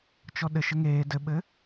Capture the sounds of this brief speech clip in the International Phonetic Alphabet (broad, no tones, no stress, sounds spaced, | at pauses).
t͡ʃ ɔ ɗ ɘ ʃ ɘ ŋ eː d ɘ ɓ ɘ